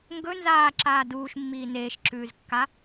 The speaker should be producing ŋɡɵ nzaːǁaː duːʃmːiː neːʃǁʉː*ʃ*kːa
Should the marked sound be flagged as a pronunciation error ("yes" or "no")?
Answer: yes